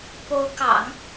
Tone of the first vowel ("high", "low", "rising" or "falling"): rising